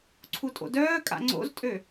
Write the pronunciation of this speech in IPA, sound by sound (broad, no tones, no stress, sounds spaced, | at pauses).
ǀʰ u tʼ o̰ d œː kʼ a̰ ŋ͡ǀ o̰ z tʼ ø